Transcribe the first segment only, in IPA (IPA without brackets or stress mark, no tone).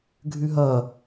ɡʱ